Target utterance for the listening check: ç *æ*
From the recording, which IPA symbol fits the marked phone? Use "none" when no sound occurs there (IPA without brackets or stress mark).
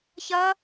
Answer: ɐ